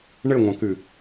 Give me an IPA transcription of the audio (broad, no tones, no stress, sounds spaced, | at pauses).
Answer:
ɳ ɘ ŋʷ ɐ̃ k ɨ